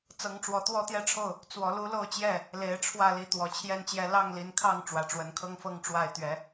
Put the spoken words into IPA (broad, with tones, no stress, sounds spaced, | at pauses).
t͡s ɤ˨˦ ŋ ʈ͡ʂ w ɔ˨˦ t̪ w ɔ˦ t̪ j ɛ˦ ʈ͡ʂʰ o˥˨ ʊ̯ | t͡s w ɔ˨˦ l u˦ l o˥˨ ʊ̯ t͡ɕ j ɛ˥˨ | l e˨˦ ɪ̯ ʈ͡ʂʰ w ä˥˨ l i˦ t̪ w ɔ˨˩ t͡ɕʰ j ɛ˥˨ n t͡ɕ j ɛ˦ l ɑ˥˨ ŋ l i˨˦ n kʰ ɑ˥˨ ŋ ʈ͡ʂ w ä˨˩ ʈ͡ʂ w ə˨˦ n kʰ ɤ˦ ŋ f ɤ˦ ŋ ʈ͡ʂ w a˥˨ ɪ̯ t̪ ɥ ɛ˨˦